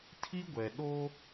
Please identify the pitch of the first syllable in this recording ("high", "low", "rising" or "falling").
high